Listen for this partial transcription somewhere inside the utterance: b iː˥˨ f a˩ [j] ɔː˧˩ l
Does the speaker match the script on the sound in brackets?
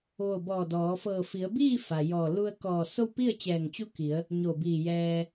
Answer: yes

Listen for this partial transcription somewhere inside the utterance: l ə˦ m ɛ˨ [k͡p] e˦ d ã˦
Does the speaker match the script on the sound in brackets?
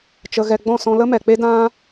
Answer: yes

